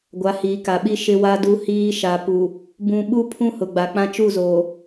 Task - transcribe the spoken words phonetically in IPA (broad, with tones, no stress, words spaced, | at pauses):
ɡʷa˨˦hiː˨ka˨ɓi˦ ʃɪ˦wa˦du˦hiː˦ ʃa˨pu˨ | bũ˦ ɓu˦ pʰũ˦hʊ˨ɡ͡ba˨k͡pã˦ t͡ʃu˦˨zoː˨